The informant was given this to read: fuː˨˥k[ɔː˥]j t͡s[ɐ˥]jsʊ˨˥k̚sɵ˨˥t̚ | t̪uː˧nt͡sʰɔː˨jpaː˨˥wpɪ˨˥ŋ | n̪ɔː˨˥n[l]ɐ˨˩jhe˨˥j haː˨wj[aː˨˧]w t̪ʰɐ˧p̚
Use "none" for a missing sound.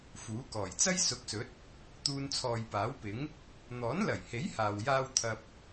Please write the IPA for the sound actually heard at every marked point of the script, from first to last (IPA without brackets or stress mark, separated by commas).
ɔː˨˩, ɐ˥, l, aː˥